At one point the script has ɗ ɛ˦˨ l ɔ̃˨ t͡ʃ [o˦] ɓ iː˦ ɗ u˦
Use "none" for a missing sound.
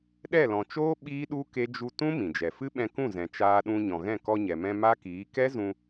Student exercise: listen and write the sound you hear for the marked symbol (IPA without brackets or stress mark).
oː˦